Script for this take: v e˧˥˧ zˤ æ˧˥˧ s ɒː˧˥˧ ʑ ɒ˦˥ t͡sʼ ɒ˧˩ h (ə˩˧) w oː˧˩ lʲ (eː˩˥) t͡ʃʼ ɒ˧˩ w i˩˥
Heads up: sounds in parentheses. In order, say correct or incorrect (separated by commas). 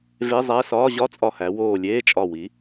incorrect, incorrect